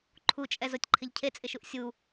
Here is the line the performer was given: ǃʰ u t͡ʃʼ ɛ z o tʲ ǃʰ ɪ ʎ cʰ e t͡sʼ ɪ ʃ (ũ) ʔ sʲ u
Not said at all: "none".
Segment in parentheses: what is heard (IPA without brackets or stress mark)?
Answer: u